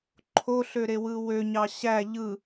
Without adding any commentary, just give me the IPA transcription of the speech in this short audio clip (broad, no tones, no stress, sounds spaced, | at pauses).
ǃʰ o ɬ ø ɾ e w ɯ w ø ɲ ɑ ɕ æ ʎ ɯ